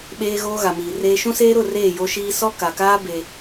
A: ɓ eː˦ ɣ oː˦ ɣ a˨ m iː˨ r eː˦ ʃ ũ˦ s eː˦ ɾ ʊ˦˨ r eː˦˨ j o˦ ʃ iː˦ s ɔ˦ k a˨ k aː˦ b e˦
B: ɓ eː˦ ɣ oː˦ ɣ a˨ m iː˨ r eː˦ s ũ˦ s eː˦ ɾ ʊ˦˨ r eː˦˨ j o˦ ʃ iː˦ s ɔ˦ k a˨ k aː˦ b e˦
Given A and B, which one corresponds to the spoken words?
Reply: A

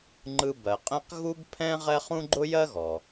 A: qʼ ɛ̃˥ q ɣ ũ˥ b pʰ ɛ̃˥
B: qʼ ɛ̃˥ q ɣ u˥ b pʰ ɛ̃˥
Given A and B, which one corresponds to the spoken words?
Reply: B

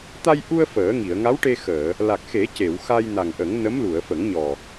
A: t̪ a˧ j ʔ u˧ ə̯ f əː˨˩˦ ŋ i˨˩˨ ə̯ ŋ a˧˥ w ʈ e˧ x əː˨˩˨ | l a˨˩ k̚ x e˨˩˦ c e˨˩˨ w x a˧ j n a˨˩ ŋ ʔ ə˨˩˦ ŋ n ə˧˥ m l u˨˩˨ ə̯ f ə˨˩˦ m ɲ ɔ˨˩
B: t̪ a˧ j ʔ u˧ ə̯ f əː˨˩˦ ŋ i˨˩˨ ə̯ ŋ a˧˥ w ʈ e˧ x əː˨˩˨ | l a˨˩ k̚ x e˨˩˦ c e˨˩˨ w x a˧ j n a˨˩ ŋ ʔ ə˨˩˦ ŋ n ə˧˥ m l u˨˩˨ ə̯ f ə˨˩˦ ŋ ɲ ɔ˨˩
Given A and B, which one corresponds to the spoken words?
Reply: B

